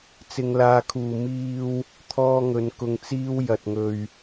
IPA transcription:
t͡s ɪ˧ ŋ l aː˧ kʰ uː˨ m iː˧ w | t̪ʰ ɔː˥ ŋ ɵ˧ n k ʊ˧ ŋ t͡s iː˥ w j ɐ˨ t̚ ŋ ɵ˨ ɥ

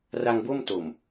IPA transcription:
r a˧ ŋ b o˥˩ m t o˨˩ m

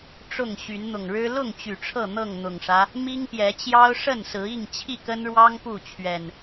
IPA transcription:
ʈ͡ʂ ʊ˥˨ ŋ ɕ y˨˦ n n̪ ʊ˨˩ ŋ ɻ ɻ̩˦ l ʊ˥˨ ŋ t͡ɕ y˨˩ ʈ͡ʂʰ ɤ˥˨ n̪ ɤ˥˨ ŋ n̪ ʊ˨˩ ŋ ʂ ä˦ | m i˦ ŋ p j ɛ˨˦ t͡ɕ j ɑ˦ ʊ̯ ʂ ə˥˨ n s ɹ̩˨˦ i˥˨ ŋ t͡ɕʰ i˥˨ k ə˦ n ɻ w ɑ˦ ŋ p u˥˨ t͡ɕʰ ɥ ɛ˨˩ n

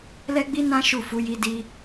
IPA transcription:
l ɛ˦ ɡ͡b i˦ n ã˦ ʃ u˦˨ f u˨˦ j i˧ d i˧

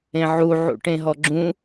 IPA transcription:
ẽ ʕ u ʕ ṵ ʈ ẽ ɦ ɔ ɡ͡ǁ ũ

